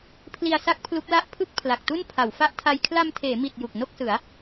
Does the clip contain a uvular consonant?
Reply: no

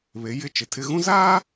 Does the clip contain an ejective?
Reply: no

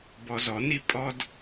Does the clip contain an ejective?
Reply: yes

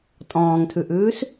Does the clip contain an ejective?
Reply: yes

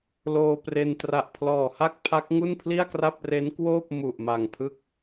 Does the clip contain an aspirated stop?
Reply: yes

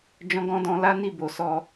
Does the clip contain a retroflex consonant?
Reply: no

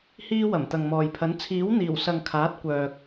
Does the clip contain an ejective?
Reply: no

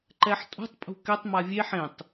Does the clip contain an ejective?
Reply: yes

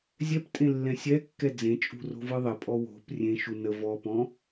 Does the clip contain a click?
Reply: no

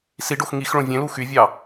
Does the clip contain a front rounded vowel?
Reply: yes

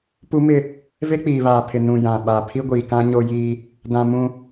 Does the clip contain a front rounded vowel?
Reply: no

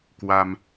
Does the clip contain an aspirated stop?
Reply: no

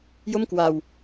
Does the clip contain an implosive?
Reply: no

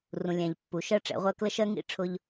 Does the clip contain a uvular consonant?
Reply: yes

